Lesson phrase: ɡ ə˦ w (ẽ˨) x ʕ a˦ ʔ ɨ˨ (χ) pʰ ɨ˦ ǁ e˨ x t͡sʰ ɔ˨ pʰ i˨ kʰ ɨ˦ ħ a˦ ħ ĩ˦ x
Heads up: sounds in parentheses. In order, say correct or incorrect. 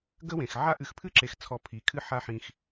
correct, incorrect

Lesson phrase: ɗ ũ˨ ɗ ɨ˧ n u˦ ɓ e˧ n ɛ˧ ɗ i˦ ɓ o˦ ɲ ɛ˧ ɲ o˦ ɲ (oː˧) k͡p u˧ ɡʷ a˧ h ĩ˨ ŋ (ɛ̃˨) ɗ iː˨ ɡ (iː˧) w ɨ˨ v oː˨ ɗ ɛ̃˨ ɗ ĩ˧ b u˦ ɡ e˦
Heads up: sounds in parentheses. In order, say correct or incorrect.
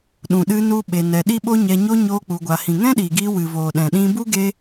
incorrect, incorrect, correct

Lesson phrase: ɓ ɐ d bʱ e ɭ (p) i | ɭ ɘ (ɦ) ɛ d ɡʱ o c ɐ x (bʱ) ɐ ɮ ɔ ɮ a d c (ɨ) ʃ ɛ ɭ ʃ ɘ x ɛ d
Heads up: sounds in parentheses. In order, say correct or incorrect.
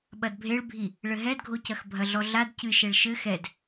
incorrect, correct, correct, correct

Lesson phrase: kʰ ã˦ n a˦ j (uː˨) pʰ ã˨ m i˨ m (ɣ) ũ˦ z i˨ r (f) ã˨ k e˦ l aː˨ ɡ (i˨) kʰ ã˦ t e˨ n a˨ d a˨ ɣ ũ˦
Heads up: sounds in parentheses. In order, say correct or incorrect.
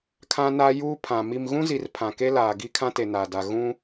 incorrect, correct, incorrect, incorrect

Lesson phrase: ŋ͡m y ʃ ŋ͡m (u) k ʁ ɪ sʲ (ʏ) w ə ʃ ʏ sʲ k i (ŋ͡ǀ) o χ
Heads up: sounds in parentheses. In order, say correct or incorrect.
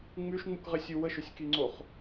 correct, incorrect, correct

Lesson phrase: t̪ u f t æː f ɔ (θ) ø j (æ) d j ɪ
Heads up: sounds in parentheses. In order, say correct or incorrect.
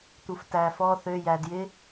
correct, correct

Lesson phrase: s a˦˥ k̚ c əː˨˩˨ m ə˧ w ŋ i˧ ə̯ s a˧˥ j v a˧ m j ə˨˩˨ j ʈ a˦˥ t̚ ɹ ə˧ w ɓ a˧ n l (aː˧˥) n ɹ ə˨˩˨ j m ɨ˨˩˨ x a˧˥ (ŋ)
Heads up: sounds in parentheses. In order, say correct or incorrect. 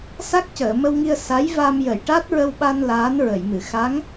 correct, correct

